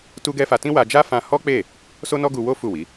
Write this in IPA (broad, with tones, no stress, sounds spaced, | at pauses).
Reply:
t u˦ ɡ ɛ˦ f a˧ t ĩ˦ w a˧ d͡ʒ a˦ f ã˧ h ɔ˦ k͡p e˦˨ | s o˦ n ɔ˦ ɡ u˧ w o˦ f u˦˨ w i˨˦